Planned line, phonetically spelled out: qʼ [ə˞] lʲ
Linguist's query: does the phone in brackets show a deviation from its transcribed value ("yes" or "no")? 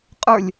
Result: no